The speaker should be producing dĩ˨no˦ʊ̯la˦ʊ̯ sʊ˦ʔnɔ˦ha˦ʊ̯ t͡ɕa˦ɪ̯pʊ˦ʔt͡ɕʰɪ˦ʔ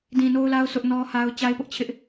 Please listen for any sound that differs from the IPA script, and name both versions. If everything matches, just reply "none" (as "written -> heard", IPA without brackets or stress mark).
none